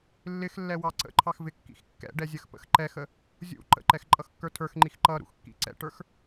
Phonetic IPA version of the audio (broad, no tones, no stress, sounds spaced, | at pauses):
lː ɪ x lː ɛ w ɑ ǀ ə̰ ǃʰ ɑ x v ɪ kː ḭ x kː ɛ̰ ɖ ɛ zʲ ə x p ə̰ x ǃ ɛ x ə | zʲ ṵ ǃ ə̰ ǃ ɛ x ǃʼ ʌ x kː ə˞ tʰ ə˞ x ŋ͡ǃ i x ǃ ʌ ɾ ṵ x kː ḭ ǀ ɛ̰ ʈ ə˞ x